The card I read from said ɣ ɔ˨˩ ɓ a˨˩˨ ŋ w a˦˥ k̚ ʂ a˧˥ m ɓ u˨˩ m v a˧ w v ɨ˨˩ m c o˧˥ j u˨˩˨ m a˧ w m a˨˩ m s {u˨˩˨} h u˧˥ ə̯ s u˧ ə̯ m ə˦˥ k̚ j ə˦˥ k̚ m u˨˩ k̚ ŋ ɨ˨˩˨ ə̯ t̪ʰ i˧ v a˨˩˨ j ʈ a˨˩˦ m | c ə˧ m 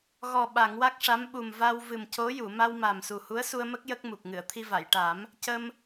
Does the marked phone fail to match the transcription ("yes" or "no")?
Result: yes